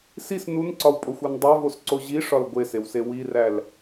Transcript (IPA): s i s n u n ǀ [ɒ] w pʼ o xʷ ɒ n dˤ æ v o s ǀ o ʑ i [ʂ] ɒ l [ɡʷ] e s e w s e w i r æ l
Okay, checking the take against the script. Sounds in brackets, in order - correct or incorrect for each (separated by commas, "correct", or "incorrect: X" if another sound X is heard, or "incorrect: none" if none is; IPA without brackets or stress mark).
correct, correct, correct